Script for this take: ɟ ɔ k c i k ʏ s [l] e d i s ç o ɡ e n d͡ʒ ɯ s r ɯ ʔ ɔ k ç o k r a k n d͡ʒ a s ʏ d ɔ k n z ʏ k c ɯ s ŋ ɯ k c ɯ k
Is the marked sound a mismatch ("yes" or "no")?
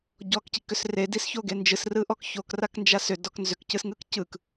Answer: yes